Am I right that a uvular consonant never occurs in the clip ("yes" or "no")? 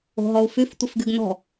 yes